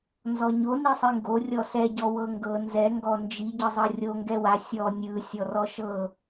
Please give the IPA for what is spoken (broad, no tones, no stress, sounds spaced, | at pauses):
n z ɔ ɲ o n i sˤ i ŋ ɡ o rʲ ɔ s ɛ ɟ ɔ w ɤ ŋ ɡ ɤ n z ɛ ŋ ɡ ɔ n d͡ʒ i ɟ ɯ zˤ ɤ rʲ o ŋ ɡ ɛ w a sʲ ɔ nʲ ɯ sʲ ɔ r ɔ ʃ ɤ